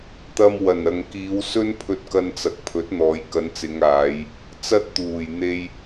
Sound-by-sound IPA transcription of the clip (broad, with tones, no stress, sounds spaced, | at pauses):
t̪ ɐ˧ m w ɐ˨˩ n ɐ˨ ŋ k iː˨˧ w s ɵ˥ n pʰ ɵ˧ t̚ k ɐ˧ n t͡s ɐ˨ k̚ pʰ ɵ˨˥ t̚ n̪ ɔː˨˧ j k ɐ˨˧ n t͡s ɪ˨˧ ŋ aː˨˧ j | t͡s ɐ˥ t̚ t̪ uː˨˩ j n̪ e˧ j